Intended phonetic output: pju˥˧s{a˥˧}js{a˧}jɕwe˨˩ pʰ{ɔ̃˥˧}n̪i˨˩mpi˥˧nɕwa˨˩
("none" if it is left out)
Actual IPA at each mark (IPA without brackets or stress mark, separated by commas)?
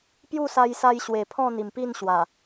a˧, a˧, ɔ̃˥˧